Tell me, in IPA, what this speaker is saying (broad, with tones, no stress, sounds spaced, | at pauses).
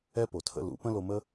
ɛ˦ p o˨ tʰ ə̰˦ l ṵ˨˦ p ə̃˦ l o˧ m ə˦